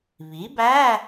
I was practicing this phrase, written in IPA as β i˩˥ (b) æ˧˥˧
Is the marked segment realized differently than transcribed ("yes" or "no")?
no